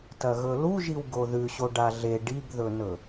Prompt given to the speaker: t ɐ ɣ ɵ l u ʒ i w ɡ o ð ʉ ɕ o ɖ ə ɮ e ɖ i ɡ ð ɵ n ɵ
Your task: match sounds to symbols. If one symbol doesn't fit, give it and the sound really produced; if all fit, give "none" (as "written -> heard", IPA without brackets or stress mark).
ə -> a